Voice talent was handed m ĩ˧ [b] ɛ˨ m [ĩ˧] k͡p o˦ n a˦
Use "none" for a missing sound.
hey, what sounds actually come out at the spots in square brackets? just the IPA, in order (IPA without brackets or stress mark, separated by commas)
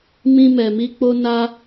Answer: m, i˧